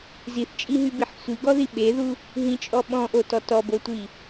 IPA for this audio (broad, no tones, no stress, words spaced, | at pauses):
ziθt͡ʃʼiɦybiħ sʷiɡɔði ɓeðu | ɦĩt͡ʃʼɔ ɓɔ̃ʔotɔ tɔbotʷi